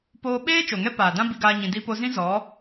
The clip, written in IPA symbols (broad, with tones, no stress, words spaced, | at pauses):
poː˧ɓeː˦ t͡ʃo˨ŋɛ˦paː˨dã˦ bi˧ɡaː˧ɲĩ˨ di˧po˧zĩ˦ zɔ˨˦